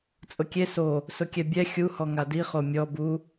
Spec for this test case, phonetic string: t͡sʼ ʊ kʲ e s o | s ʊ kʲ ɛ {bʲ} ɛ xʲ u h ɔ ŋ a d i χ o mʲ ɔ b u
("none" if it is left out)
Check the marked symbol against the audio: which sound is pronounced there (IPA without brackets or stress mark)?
bʲ